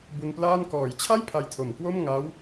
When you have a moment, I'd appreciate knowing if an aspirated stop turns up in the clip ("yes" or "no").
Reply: yes